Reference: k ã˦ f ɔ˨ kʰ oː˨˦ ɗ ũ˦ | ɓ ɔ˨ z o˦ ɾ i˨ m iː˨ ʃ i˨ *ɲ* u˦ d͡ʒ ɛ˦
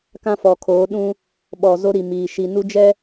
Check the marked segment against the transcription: incorrect: n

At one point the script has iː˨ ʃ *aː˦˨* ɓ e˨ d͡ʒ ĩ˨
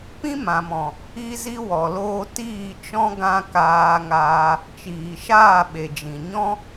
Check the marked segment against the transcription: correct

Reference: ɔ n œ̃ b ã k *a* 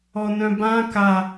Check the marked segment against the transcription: correct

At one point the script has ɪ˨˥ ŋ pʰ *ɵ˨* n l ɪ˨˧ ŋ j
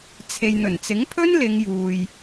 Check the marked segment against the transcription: incorrect: ɵ˥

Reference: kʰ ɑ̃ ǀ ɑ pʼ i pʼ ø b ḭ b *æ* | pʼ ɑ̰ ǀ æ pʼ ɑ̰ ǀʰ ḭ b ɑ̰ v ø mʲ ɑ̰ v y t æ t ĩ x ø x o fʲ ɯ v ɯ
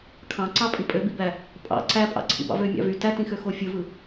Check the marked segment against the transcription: correct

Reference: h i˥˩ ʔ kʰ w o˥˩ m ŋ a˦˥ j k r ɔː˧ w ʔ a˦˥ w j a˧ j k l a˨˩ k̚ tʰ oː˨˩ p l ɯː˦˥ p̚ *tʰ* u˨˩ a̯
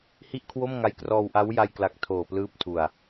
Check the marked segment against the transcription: correct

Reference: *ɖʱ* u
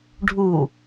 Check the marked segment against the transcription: correct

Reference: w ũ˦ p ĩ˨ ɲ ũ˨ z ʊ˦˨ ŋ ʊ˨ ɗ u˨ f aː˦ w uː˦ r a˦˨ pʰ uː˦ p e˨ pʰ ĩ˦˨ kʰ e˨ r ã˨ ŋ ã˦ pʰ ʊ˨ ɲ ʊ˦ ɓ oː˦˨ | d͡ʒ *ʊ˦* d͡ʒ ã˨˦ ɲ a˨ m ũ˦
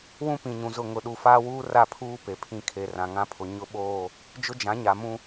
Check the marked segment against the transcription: correct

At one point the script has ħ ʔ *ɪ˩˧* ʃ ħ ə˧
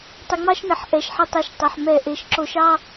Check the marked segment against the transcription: incorrect: ɛ˩˧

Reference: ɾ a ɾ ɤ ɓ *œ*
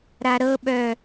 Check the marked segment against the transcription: correct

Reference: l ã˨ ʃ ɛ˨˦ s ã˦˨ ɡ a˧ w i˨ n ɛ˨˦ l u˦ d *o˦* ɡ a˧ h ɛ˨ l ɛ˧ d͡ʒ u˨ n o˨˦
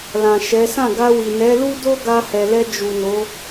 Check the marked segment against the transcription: correct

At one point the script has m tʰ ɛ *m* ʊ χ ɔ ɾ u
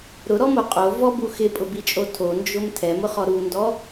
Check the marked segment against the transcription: correct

